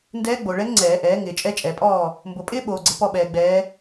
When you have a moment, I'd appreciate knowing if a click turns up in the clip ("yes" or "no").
yes